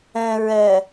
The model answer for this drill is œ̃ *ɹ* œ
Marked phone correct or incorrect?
correct